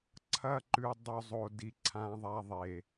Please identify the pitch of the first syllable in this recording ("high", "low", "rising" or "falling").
falling